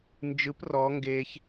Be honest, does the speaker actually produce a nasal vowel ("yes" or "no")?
no